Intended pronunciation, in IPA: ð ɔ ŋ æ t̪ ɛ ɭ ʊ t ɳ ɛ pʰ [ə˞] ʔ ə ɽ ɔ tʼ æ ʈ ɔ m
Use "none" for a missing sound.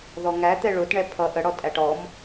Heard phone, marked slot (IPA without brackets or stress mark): ʌ